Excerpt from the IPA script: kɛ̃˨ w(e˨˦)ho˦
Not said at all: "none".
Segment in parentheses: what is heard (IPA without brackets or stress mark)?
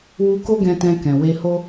e˧